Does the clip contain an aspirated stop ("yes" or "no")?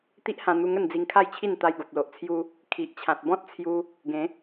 yes